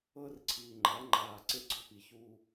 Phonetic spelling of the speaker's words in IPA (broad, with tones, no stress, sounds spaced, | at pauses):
ɤ˦ r ǀʰ iː˨ ŋ͡ǃ a˨˦ ŋ͡ǃ aː˨ ǀ e˦ ɡ͡ǀ ɔ˦ p i˨ ç u˦